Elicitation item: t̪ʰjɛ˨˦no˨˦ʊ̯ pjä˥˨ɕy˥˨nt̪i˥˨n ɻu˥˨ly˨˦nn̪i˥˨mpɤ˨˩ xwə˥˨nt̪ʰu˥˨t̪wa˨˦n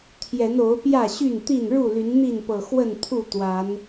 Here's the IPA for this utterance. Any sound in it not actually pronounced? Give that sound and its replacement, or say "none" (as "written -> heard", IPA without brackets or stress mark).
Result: m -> n